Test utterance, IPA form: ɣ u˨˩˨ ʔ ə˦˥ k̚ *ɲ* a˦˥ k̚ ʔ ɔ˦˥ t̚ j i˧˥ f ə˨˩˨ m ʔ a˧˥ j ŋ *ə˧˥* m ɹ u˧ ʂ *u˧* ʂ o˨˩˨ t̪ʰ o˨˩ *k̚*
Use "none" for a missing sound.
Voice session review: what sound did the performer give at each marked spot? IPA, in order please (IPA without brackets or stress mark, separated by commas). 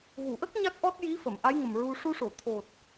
ɲ, ə˨˩, u˧, t̚